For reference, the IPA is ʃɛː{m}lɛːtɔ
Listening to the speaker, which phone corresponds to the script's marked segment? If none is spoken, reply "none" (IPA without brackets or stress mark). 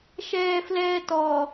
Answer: f